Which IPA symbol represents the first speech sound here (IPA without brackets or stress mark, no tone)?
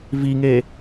v